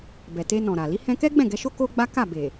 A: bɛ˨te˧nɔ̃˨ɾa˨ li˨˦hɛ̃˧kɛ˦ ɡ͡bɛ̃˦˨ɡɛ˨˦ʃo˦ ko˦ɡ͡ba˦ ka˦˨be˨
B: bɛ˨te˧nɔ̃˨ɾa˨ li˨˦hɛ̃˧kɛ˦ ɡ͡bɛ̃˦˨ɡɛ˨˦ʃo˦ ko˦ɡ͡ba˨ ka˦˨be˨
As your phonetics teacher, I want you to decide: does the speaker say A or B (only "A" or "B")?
A